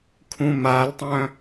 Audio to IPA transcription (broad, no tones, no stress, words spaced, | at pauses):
kʰũmaltˤœ̃